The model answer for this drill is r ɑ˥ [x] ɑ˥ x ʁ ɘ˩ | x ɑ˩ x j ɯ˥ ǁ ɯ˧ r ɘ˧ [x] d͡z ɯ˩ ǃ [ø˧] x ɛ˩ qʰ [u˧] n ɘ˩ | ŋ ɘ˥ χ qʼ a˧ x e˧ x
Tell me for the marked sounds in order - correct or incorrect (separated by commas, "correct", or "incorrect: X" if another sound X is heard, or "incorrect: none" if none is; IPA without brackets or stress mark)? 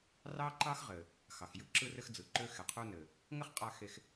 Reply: incorrect: ǃ, correct, correct, correct